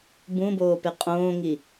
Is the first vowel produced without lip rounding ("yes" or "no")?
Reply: no